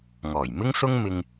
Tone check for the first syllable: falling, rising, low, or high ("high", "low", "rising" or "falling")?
low